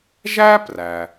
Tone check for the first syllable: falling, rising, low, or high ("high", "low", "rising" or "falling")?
high